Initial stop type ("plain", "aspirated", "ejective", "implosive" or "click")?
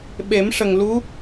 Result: implosive